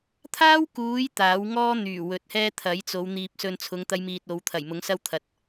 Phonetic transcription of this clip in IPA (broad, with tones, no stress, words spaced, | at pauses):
t̪ʰaː˥wkuː˨˧j t̪aː˨˥w ŋɔː˥n̪yː˨˩ wɵ˨t̚hɛː˥t̪ʰɐ˨˥j t͡so˨˧w n̪iː˨p̚sɵ˧nt͡sʰʊ˨˧ŋ t̪ɐ˥jmiː˧t̚o˨˧w t̪ʰɐ˨˩jmʊ˨˥ŋsɐ˥wt̪ʰɐ˨t̚